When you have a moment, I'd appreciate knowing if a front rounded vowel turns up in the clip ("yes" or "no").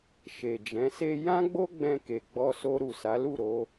no